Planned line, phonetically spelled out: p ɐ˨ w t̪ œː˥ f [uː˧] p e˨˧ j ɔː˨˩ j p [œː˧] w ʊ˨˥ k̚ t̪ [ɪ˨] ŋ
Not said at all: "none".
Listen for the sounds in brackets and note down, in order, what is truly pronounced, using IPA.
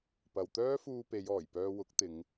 uː˧, œː˧, ɪ˨˧

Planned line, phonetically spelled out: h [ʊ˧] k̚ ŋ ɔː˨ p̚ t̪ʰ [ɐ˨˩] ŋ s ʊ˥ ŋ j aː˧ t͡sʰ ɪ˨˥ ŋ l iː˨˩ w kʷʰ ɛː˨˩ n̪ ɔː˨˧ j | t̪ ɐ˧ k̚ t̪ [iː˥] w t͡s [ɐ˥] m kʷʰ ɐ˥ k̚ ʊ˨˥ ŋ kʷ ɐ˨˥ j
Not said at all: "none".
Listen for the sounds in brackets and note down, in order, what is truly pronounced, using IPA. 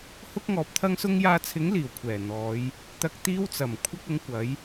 ʊ˥, ɐ˥, iː˥, ɐ˨˩

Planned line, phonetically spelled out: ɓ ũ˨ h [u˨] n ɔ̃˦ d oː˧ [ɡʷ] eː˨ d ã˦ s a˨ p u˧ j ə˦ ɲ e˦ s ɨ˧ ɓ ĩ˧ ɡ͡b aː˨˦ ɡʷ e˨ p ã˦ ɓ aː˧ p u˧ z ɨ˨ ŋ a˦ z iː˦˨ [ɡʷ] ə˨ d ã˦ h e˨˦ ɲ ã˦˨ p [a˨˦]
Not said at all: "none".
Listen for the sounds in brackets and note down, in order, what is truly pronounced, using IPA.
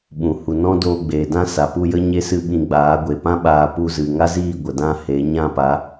u˨, ɡ͡b, ɡʷ, a˨˦

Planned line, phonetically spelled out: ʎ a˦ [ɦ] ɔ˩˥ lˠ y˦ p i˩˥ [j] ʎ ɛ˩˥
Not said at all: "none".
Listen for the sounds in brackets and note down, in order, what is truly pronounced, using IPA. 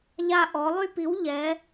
ʔ, w

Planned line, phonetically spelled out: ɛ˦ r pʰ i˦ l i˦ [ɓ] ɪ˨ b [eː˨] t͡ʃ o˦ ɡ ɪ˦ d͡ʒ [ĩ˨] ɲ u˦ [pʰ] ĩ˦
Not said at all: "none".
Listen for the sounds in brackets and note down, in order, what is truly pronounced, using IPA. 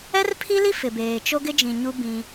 f, eː˨, ĩ˨, b

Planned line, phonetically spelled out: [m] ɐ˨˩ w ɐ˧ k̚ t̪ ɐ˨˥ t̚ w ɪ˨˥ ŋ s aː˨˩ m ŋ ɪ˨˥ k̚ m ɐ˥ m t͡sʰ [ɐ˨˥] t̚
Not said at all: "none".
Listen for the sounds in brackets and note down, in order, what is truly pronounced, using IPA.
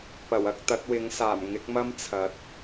p, ɐ˨˥

